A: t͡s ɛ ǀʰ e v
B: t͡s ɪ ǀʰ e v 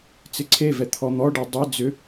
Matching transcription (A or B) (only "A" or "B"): B